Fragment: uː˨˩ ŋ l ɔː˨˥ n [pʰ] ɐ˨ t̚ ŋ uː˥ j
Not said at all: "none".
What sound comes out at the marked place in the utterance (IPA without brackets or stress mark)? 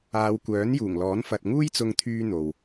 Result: f